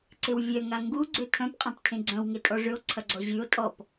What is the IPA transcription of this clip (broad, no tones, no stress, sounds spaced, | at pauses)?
ǀ ɪ w vʲ œ ŋ a ŋ ɡ u ɡ͡ǀ ø tʰ œ̃ p qʼ ã p tʰ ẽ ɡ͡ǀ œ̃ w ŋ e tʼ ɔ ʐ ʏ o̯ ǀʰ ɐ ɡ͡ǀ ɔ ʑ y o̯ tʼ ɔ p